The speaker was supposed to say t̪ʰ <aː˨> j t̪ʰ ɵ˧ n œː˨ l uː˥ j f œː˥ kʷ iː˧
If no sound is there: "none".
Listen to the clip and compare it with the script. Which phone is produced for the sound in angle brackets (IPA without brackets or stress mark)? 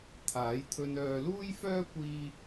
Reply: aː˨˥